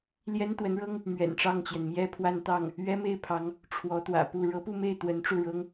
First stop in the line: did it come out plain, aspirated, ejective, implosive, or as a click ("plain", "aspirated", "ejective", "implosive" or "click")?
plain